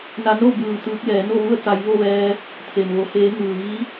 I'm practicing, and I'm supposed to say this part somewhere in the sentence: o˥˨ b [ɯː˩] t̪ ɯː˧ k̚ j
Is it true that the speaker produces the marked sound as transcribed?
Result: no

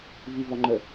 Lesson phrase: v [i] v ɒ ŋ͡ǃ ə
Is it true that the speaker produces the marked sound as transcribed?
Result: yes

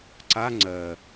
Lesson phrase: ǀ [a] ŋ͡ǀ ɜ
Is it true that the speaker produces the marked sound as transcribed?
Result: yes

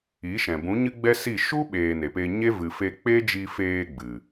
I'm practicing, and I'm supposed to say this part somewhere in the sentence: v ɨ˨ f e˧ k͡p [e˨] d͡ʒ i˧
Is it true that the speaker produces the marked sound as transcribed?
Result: no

